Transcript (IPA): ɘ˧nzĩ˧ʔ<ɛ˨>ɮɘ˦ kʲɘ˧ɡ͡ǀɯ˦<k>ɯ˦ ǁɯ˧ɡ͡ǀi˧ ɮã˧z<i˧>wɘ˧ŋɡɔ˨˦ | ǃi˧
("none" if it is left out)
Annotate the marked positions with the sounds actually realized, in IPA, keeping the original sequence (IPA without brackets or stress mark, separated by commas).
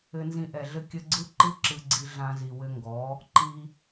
ɛ˨, ǃ, i˨